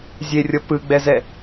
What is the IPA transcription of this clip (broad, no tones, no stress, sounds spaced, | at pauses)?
zʲ e rʲ ɤ p ɯ ɡ͡b ɛ z ɛ